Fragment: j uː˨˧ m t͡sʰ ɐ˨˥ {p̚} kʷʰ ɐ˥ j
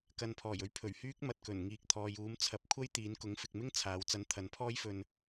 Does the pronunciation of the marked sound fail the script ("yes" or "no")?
no